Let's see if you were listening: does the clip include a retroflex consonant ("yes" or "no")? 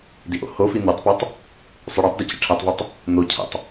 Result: yes